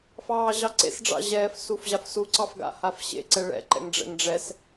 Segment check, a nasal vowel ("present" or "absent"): absent